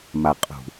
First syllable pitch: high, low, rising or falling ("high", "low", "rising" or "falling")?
low